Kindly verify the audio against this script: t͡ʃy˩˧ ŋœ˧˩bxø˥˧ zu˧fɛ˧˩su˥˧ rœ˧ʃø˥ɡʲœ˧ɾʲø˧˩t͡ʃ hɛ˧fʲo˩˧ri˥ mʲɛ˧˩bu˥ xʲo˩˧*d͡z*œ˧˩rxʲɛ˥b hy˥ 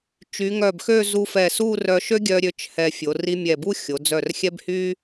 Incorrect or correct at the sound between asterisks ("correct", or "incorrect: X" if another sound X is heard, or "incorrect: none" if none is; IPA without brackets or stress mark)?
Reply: correct